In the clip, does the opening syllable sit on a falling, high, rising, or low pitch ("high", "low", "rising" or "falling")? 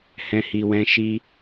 high